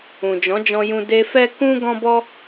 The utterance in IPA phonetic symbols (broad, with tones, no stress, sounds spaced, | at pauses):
ũ˨ d͡ʒ ɔ̃˨˦ d͡ʒ ɔ̃˧ j ũ˧ d e˧ f ɛ˦ k ũ˦ ɡ ɔ̃˦ b ɔ˦